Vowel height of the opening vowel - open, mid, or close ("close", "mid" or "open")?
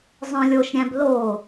mid